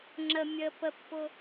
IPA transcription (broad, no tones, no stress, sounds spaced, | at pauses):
ŋ͡ǁ ə mʲ ə p ə pː ʊ